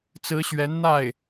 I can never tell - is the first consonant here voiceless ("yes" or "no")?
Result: yes